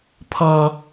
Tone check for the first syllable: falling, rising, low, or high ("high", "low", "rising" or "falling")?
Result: high